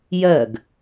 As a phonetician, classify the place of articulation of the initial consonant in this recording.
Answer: palatal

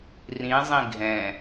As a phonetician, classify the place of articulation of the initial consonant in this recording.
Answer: alveolar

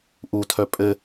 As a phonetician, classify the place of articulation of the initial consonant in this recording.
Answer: glottal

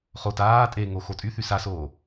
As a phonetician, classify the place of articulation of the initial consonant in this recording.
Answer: uvular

